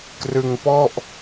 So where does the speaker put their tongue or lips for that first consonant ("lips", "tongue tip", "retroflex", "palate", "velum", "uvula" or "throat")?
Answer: velum